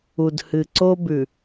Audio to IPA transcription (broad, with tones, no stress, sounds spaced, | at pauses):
u˨ d h ɨ˨ ǀ o˦ b ʉ˨